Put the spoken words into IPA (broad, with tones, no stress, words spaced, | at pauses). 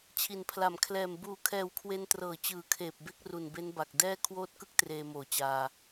t͡ɕʰi˩˦npʰla˨˩m kʰlɛː˨˩m buː˨˩kʰɛː˨˩wkʰwe˧ntrɤː˩˦ t͡ɕɯː˨˩kʰeː˨˩p̚be˦˥k̚ru˨˩n be˦˥n ba˨˩k̚ dɛː˥˩ kʰwoː˦˥t̚kɯ˦˥k̚ treː˧moː˨˩t͡ɕaː˧